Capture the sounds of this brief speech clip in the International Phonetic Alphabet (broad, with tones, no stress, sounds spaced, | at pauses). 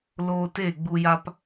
l oː˧ t e˦˨ ɡ͡b u˧ j a˦ p